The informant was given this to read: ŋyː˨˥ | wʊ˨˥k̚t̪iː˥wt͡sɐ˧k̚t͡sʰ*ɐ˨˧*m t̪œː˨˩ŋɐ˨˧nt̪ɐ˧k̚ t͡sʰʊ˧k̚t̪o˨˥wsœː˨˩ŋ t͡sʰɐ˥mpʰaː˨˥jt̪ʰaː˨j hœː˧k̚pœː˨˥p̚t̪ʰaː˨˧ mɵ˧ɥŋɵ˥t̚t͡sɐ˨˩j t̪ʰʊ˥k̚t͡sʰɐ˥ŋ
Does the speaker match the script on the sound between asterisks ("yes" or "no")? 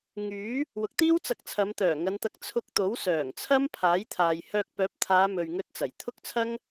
yes